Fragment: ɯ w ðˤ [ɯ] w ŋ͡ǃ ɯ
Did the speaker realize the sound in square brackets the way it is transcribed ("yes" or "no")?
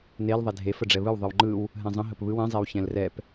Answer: yes